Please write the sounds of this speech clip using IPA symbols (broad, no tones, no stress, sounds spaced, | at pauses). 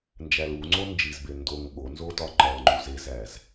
n d͡ʒ æ l u ŋ͡ǀ o n d͡ʒ i z b e n d o ŋ ɠ o n z o d ɒ ŋ͡ǃ ɒ l ŋ͡ǃ u z e z æ z